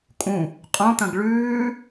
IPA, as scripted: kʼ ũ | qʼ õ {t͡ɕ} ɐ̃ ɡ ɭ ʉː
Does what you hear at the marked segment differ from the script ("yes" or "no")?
yes